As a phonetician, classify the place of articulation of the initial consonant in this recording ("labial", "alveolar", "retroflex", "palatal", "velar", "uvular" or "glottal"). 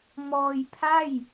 labial